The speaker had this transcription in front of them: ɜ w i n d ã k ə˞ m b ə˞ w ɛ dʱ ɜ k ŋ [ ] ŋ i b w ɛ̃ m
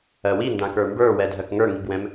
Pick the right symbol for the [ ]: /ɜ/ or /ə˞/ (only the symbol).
ə˞